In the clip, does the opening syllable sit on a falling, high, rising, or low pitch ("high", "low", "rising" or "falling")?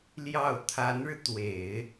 falling